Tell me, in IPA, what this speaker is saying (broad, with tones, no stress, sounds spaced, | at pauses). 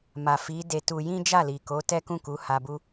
m a˨ f i˨˦ d e˧ t u˧ j ĩ˦ d͡ʒ a˦˨ l i˨ k o˨˦ t ɛ˦ k ũ˦˨ k u˨˦ h a˧ b u˦